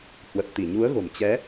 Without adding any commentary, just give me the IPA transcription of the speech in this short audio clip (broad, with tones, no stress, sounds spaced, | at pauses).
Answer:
h w ə˨˩ t̚ t̪ i˧˩ ɲ u˨˦ ə̯ ɣ o̤˨˩ m t͡ɕ ɛ˨˦